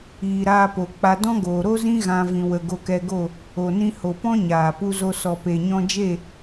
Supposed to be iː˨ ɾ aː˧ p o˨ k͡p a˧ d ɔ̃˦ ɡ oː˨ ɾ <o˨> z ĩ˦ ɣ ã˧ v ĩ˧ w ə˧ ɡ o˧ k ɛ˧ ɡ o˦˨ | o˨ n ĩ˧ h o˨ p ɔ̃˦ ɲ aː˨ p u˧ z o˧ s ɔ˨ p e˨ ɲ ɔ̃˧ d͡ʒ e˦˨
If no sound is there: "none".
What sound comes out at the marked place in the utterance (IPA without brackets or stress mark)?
o˦